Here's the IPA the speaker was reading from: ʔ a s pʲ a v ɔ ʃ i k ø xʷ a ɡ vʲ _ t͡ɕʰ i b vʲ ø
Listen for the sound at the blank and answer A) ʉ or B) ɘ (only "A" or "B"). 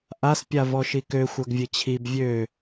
B